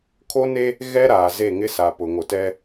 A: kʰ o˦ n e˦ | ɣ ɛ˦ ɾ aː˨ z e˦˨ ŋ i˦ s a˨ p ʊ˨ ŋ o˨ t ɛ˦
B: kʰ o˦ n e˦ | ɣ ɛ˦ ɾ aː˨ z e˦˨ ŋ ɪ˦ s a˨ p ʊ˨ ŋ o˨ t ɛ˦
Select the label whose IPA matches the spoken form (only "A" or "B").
B